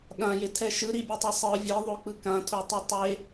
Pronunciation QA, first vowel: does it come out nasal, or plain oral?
nasal